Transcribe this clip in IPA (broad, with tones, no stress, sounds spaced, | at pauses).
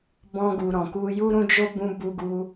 b ɔ̃˧ ɡ u˨ ɾ ɔ̃˨ k u˧ j u˦ ɾ ũ˦ d͡ʒ o˦ b ũ˧ b u˧ ɡ u˧